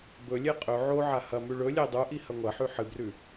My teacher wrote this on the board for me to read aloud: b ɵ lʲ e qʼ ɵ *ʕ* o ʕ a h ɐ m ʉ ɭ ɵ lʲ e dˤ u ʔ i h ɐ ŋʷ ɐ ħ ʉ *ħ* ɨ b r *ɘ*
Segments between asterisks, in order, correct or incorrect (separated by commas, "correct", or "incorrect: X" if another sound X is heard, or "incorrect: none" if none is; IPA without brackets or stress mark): correct, correct, incorrect: ʉ